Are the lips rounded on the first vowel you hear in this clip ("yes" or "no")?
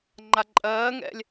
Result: no